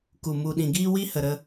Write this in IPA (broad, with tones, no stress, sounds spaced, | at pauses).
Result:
k u˨ m u˧ ɗ ĩ˧ ɡ iː˦ w i˦ h ə˧ ɾ ə˦